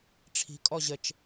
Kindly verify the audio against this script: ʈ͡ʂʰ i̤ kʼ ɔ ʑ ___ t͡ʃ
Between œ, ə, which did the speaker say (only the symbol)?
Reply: ə